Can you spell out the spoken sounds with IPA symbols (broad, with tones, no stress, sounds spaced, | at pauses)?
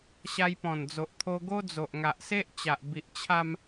ɕ a˧ j p ɔ̃˨˩ n d͡z o˨ ʔ t̪ʰ o˧ ɡ o˦ d͡z o˨ ʔ ŋ a˨ ʔ s e˦ ʔ t͡ɕ a˨ ʔ b i˨ ʔ t͡ɕʰ a˧ m